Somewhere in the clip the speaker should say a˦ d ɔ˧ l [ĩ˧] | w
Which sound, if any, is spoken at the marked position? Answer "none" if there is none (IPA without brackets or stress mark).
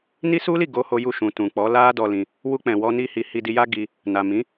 ĩ˧